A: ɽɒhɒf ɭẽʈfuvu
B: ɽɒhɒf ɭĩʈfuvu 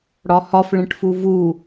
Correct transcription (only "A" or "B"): A